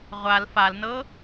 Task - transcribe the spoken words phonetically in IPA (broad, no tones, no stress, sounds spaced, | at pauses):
ʁʷ a l f a l n ɤ